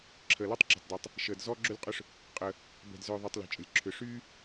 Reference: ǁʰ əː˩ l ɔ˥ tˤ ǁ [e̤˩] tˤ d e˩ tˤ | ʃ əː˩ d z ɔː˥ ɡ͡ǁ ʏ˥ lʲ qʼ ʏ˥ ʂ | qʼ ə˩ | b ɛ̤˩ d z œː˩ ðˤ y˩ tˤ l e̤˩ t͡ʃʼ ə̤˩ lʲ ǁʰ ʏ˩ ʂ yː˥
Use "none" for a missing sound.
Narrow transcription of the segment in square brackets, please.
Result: e̤˩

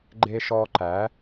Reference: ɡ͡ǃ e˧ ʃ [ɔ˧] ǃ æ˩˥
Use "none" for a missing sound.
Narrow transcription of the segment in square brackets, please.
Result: ɔ˧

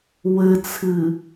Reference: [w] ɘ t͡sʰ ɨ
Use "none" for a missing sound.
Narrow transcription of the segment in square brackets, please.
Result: w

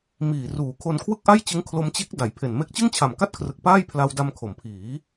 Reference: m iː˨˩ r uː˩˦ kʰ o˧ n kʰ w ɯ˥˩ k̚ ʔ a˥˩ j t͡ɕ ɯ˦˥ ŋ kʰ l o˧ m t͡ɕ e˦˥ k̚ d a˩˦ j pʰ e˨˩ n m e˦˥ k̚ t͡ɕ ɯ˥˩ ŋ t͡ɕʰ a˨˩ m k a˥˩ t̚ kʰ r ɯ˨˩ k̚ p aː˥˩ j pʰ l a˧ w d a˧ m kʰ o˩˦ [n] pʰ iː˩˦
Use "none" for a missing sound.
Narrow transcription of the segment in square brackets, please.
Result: m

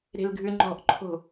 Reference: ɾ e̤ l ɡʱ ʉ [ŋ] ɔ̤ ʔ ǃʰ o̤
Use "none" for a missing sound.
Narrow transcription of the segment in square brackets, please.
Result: ŋ͡ǃ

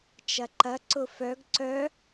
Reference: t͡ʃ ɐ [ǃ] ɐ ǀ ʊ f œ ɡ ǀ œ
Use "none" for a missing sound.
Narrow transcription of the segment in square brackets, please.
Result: ǃ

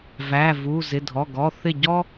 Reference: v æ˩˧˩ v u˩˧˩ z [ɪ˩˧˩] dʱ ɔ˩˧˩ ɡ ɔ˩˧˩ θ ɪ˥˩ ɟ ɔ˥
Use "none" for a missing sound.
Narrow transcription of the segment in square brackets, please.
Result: ɪ˩˧˩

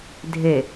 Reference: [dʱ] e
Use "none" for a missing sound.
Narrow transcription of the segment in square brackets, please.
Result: dʱ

